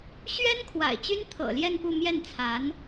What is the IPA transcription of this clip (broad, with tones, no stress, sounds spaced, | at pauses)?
ɕ ɥ ɛ˥ n kʰ w a̰˨˩ ɪ̯ t͡ɕ y˥ n t̪ʰ ɤ̰˨˩ l j ɛ˥˧ n p u˥˧ m j ɛ˥˩ n t͡sʰ a˧˥ n